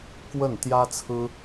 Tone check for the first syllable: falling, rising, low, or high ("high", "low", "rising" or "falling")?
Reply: falling